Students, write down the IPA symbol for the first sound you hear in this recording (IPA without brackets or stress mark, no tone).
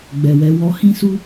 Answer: ɡ͡b